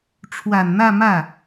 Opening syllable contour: low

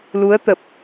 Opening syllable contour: rising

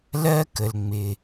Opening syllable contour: high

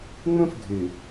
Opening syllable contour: high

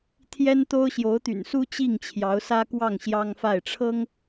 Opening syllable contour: high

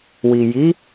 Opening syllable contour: low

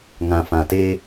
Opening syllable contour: low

